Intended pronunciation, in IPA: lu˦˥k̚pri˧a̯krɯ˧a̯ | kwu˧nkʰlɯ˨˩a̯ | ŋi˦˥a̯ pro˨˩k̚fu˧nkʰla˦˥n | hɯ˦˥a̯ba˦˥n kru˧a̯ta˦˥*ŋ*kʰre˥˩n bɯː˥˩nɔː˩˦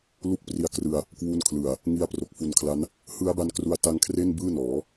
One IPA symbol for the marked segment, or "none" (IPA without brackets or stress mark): ŋ